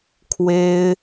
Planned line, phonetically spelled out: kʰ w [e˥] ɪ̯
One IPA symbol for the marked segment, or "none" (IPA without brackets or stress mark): e˥